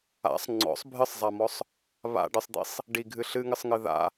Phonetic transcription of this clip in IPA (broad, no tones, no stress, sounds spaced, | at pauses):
a̰ sˤ ŋ͡ǀ ɔ̰ sˤ bʱ ɨ sˤ zˤ a m ɔ sˤ | β a̰ ɖ ɨ sˤ d̪ ḭ sˤ | ɖ i ɡʱ ɨ ɬ ɨ ŋ ɨ sˤ ŋ ɨ ð a̰